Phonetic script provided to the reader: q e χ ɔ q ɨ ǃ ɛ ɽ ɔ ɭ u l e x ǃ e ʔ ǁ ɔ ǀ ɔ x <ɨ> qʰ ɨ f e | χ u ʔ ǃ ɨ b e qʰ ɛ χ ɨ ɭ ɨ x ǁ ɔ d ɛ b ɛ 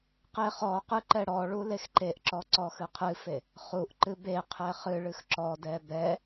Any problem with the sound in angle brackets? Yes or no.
no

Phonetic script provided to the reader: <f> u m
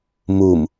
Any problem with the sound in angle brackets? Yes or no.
yes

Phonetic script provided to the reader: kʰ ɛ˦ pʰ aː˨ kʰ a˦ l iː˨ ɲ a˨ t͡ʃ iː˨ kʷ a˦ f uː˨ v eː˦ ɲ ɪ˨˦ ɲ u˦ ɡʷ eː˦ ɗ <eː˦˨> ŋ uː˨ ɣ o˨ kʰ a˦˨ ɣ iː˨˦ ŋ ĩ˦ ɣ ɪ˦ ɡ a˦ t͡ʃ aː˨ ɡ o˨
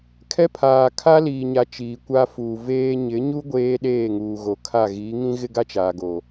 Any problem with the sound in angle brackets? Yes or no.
no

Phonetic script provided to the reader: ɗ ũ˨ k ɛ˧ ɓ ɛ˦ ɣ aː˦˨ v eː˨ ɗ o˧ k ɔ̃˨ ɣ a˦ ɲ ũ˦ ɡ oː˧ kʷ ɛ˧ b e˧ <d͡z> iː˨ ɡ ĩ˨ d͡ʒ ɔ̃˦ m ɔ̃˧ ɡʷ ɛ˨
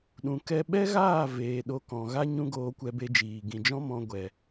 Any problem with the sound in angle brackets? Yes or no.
yes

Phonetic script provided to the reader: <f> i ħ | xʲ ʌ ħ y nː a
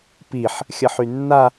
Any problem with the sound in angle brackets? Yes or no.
yes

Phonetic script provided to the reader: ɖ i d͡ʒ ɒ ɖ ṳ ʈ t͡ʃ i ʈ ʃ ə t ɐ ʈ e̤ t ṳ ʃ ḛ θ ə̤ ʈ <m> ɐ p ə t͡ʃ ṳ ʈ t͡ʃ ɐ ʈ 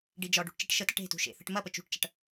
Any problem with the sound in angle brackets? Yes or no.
no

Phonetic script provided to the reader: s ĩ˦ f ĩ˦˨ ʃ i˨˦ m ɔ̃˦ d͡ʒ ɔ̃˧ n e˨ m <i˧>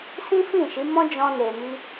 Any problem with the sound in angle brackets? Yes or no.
no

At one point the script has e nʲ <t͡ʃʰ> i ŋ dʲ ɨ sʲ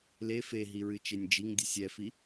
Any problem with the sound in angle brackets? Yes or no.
yes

